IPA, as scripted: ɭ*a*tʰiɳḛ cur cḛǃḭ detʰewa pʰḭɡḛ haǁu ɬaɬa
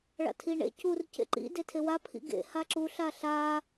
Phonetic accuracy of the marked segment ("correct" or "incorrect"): incorrect